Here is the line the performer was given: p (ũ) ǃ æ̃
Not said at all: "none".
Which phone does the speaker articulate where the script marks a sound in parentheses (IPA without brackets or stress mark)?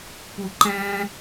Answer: u